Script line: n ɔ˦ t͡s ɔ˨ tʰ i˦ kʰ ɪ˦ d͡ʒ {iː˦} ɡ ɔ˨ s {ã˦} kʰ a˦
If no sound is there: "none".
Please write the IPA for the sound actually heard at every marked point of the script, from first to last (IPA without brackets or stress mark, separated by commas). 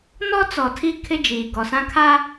iː˨, ã˦